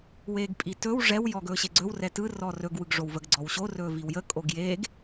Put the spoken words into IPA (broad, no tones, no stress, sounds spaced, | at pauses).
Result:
w eː ɡ pʼ i t ɵ w ʐ ɛ w j ɔː ɡ ɵː ɕ e ɡ͡ǀ ɵ w r ɛ t ɯ r ɔː r ɵ ɡ w ɯ ɡ ʐ o w v ə ɡ ɡ͡ǀ ɔ w ɕ o r ɵː v i w j ə kʼ o ɡ j eː ɡ